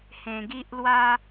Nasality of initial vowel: nasal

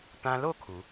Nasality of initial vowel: nasal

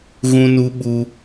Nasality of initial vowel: nasal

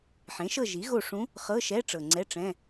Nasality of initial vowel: nasal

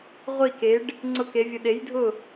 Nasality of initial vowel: oral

